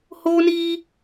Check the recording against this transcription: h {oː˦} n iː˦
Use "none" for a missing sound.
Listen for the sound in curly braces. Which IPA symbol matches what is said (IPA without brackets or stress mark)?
oː˦